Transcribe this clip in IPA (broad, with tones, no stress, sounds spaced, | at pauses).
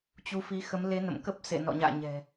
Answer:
t͡ɕ u˨˦ f i˨˦ x ə˨˦ m l e˨˦ n ə̰˧˨ m k ə˦˥ p̚ s ḛ˧˨ n ɔ̰˧˨ ɲ a̰ː˧˨ ɲ ɛ̤˨˩